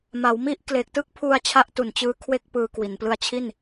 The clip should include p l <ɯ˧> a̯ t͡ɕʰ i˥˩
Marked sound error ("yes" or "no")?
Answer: no